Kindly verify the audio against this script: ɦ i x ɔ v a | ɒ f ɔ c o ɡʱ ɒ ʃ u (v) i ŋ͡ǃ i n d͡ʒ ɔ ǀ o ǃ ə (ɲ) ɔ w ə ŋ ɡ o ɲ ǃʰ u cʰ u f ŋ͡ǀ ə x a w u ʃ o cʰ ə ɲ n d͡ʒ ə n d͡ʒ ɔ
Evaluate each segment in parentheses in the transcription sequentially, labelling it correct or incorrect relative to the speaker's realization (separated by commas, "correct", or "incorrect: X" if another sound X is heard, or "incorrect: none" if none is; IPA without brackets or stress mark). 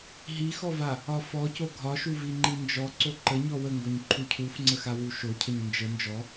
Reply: correct, correct